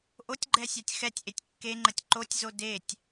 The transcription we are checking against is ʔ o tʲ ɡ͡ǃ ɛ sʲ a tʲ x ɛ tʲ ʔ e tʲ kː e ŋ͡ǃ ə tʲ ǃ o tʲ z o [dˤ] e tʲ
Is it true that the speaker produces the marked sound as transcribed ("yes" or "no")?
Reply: no